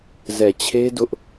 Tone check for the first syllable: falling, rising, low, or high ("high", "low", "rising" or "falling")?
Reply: low